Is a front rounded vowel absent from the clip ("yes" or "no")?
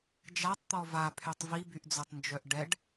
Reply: no